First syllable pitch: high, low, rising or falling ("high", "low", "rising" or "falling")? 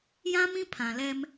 high